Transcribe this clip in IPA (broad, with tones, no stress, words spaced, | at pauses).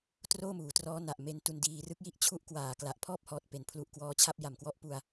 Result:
troː˥˩muː˩˦trɔː˦˥ na˨˩ʔme˦˥ntu˧n diː˧rɯ˦˥k̚ji˥˩ʔ t͡ɕʰu˥˩ʔkwaː˨˩ kla˨˩ʔpʰɔː˥˩p̚hɔː˨˩t̚ pe˩˦npʰlu˨˩ʔkwɔː˧t͡ɕʰa˥˩p̚ ja˨˩mkwɔ˦˥ʔpu˧a̯